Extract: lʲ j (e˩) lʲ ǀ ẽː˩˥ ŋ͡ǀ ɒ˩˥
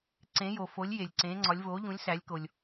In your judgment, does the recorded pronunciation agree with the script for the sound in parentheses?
yes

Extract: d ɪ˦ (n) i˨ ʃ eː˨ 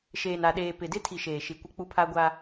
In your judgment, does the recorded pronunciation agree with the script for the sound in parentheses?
no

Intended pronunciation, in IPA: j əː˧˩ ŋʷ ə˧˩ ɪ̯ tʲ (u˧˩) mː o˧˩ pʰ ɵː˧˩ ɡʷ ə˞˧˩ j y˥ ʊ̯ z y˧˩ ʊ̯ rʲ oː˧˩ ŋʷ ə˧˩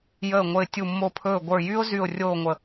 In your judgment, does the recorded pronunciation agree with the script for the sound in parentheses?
yes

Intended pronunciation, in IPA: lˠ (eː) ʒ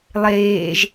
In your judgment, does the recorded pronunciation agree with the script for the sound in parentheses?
yes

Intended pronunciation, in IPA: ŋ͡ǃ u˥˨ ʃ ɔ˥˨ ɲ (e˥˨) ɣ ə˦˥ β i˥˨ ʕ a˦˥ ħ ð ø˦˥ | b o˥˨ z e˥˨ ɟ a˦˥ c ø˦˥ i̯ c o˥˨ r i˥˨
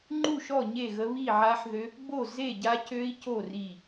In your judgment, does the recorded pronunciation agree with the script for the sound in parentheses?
yes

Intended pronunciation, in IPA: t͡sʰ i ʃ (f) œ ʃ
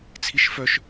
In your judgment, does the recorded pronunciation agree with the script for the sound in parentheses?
yes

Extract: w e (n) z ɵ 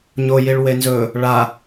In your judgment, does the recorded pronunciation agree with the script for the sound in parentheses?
yes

